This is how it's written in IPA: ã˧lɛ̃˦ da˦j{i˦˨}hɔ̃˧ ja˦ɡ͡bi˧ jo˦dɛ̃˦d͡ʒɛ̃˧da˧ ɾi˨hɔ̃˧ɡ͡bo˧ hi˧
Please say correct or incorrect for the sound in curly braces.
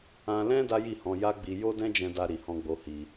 correct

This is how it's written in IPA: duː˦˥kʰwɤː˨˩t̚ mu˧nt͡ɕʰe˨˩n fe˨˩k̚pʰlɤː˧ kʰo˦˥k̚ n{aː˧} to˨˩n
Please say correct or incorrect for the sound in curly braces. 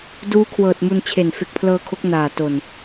incorrect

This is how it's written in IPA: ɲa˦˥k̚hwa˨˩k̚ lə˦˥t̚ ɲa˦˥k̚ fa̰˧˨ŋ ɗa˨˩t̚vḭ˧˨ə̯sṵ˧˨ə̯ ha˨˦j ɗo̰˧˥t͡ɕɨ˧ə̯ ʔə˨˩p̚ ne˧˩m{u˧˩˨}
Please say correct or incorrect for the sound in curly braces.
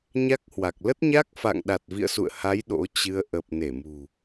incorrect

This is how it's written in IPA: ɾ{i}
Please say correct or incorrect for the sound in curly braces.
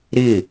incorrect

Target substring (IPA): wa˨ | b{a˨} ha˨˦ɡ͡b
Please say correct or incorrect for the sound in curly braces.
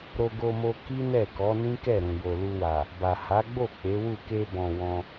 correct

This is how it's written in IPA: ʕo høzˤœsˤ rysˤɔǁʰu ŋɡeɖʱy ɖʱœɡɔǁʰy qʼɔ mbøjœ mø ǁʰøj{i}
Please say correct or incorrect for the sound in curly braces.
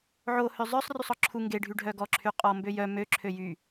incorrect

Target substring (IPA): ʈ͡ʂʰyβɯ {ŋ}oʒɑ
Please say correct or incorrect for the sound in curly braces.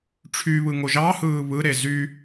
correct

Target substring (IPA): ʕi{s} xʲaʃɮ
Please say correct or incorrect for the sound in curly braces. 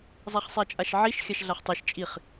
incorrect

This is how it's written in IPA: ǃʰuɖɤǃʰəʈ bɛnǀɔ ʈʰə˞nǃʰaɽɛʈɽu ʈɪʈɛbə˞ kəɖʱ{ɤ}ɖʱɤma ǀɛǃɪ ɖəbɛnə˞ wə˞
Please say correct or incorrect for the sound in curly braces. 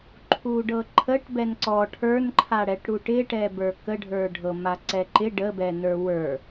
incorrect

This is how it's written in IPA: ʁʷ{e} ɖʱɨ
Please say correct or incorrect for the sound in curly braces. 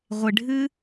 correct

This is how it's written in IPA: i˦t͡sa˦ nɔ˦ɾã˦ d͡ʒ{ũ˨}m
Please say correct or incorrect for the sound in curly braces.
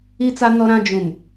correct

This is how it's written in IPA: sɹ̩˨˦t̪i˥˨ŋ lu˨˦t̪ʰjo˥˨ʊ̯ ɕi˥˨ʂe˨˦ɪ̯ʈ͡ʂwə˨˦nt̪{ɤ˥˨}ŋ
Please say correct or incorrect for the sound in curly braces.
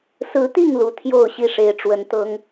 incorrect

